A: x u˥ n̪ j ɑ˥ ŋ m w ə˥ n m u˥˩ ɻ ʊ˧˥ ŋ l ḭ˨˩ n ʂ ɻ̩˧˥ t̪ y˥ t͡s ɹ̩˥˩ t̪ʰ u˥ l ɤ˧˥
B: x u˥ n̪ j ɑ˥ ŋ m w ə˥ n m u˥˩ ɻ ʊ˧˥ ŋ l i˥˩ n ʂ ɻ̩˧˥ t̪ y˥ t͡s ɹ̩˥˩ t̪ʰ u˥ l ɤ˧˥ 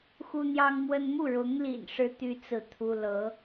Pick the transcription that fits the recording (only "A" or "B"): A